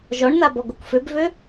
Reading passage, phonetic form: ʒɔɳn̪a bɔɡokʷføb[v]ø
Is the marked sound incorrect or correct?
correct